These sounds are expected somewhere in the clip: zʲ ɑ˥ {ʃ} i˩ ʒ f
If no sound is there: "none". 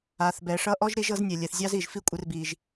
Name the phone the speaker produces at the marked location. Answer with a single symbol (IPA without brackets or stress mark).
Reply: z